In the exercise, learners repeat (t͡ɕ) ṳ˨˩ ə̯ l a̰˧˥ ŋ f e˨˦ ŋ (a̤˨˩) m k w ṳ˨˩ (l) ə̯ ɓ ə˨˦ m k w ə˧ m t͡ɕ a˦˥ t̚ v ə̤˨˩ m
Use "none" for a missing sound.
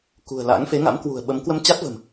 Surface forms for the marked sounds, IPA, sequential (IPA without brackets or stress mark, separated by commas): k, a̰˧˥, none